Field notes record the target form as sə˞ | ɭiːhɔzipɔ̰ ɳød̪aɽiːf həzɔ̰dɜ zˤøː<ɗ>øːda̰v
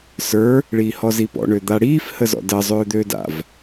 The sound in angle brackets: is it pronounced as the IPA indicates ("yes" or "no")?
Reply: no